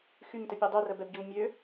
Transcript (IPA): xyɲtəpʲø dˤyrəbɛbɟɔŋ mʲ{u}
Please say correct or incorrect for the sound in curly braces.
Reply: incorrect